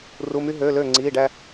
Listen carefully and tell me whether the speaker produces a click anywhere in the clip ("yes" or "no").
yes